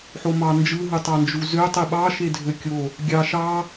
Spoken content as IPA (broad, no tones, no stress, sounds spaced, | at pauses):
ħ o m ɑ n d͡ʒ ɯ ɦ ɯ tˤ ɑ n d͡ʒ u z ø tˤ i ɓ ɑ ʃ e dʱ ø kʲ o | ɡʲ ɑ ʃ ɑ